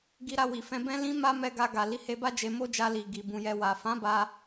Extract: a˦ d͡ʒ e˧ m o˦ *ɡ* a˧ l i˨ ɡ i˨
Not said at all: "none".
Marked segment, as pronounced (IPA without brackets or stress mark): d͡ʒ